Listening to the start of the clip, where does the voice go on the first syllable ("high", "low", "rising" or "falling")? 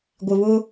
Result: low